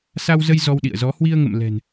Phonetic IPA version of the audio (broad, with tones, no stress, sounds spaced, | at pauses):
s a˧ w z ə˧ j z ɔ˧ w ɗ ḭ˧˨ ə̯ z ɔ˨˦ h w i˧ ə̯ ŋ ə̰˧˨ m l ɛ̤˨˩ n